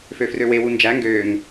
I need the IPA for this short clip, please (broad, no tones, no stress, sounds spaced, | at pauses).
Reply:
f ø f r ø w e w u n d͡ʒ æ ŋ ɡ øː ŋ